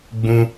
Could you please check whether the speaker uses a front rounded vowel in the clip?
no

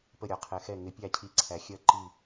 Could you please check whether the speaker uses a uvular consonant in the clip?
yes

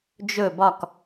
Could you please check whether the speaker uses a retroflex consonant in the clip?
no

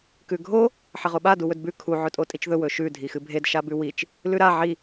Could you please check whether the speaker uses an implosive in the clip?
yes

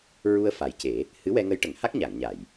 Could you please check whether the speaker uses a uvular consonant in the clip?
no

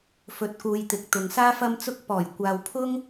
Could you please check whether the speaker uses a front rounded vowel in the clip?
no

